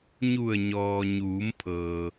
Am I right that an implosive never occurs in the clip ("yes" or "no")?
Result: yes